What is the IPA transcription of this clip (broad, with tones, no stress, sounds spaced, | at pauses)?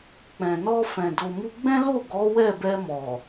k͡p ɛ̃˨ n ɔ˧ f ɛ̃˨ d o˨ m u˧ ɡ͡b ɛ̃˦ l o˦˨ ɡ ɔ˨˦ w ɛ˦˨ b ɛ˧ m ɔ˨